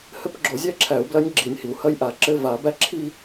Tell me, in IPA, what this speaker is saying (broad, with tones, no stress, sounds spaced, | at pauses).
h ɘ˦˥ p ɡ͡ǁ o˨˩˦ zʲ æ˦˥ ǁʰ æ˨˩˦ u̯ b l ɐ˦˥ nʲ ɡ͡ǁ i˨˩˦ nʲ h i˩ u̯ h ɐ˥˧ j ʔ a˨˩˦ ǁ ɘ˥˧ v a˨˩˦ b æ˥˧ ǁʰ i˥˧